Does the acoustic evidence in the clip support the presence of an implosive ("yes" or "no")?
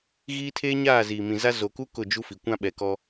yes